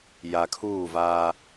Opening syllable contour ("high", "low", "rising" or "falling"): low